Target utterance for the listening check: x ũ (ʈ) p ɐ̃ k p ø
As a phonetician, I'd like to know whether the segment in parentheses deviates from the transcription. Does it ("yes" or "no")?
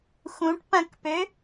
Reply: no